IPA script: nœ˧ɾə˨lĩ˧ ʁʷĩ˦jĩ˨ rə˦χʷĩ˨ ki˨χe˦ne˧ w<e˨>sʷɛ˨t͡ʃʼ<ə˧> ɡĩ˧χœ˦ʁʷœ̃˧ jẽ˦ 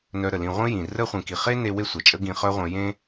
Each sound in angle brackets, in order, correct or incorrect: incorrect, incorrect

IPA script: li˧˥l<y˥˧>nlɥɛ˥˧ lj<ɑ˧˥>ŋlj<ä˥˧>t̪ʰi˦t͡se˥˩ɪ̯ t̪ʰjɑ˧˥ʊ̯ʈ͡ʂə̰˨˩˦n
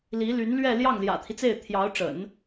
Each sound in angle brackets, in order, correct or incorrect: incorrect, incorrect, incorrect

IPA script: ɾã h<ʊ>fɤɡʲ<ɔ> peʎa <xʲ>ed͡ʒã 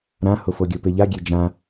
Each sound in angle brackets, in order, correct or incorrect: correct, incorrect, incorrect

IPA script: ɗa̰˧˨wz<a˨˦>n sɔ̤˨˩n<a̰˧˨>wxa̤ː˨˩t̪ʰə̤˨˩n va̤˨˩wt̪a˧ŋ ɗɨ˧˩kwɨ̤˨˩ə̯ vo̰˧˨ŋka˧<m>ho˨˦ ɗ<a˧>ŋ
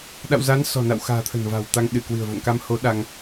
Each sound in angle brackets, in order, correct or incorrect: correct, correct, correct, correct

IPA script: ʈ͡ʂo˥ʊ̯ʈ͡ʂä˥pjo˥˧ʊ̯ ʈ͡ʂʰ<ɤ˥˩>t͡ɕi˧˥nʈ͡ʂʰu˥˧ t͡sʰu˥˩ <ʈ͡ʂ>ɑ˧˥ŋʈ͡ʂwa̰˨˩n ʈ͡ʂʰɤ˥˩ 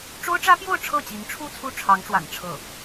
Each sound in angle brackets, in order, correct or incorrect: correct, incorrect

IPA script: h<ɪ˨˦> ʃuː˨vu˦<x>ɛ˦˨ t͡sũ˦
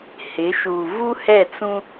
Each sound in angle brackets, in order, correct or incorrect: correct, incorrect

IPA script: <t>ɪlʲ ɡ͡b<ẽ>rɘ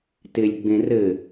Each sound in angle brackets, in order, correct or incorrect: correct, correct

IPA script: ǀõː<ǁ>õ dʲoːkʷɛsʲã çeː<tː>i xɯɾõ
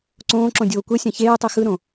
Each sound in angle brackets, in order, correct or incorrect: correct, incorrect

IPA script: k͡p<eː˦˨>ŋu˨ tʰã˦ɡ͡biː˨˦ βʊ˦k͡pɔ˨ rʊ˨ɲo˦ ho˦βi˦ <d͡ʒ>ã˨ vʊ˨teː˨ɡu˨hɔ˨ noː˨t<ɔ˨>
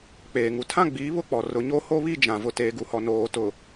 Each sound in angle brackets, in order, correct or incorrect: incorrect, correct, incorrect

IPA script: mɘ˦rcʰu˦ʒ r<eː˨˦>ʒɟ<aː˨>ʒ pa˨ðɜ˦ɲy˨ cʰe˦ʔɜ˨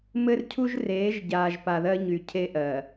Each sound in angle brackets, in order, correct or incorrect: correct, correct

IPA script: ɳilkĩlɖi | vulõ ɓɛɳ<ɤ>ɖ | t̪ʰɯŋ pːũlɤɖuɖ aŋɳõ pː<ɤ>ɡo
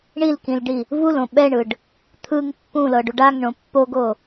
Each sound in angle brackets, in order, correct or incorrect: incorrect, incorrect

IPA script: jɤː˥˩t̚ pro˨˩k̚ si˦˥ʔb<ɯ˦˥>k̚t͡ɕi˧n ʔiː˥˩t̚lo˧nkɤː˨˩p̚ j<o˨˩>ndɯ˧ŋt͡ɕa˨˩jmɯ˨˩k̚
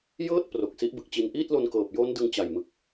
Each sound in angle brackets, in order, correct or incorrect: incorrect, incorrect

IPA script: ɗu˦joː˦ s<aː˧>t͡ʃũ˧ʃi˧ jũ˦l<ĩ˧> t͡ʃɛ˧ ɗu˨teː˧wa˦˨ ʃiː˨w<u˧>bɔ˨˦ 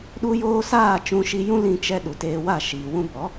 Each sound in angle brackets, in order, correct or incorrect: incorrect, correct, incorrect

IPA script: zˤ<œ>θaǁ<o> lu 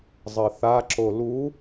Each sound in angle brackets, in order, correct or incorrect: incorrect, correct

